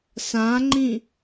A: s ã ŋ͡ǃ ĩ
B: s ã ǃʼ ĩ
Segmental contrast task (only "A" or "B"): A